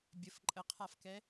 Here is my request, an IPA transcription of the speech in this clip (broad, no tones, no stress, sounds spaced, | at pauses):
bʲ ə f ǃʼ ə qʰ a f k ɛ